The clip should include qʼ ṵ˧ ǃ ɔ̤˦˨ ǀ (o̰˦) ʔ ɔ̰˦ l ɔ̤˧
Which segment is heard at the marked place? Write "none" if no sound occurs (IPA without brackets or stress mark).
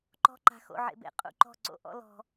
o̰˦